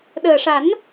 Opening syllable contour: low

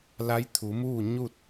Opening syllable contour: rising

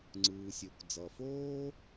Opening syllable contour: low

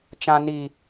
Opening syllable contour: high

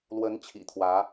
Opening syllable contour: rising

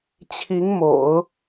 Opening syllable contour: rising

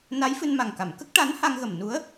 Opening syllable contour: rising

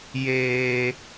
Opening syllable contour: low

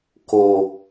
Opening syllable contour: low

